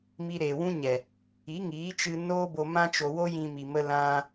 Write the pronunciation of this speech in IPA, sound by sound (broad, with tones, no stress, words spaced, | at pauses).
mi˧ɾeː˨wũ˦ɲɛ˨ | i˨˦ŋiː˨˦t͡ʃɨ˧ noː˦bo˧mã˦t͡ʃo˧ wo˦jĩ˧ mi˨mə˧ lã˧